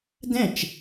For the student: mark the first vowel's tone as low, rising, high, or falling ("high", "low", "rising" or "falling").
falling